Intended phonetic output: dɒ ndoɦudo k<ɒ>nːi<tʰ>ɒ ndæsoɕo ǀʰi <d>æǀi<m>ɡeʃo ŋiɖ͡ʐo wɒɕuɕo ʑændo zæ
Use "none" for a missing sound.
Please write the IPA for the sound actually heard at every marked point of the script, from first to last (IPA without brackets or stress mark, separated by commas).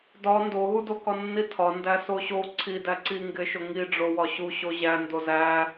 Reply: ɒ, tʰ, d, ŋ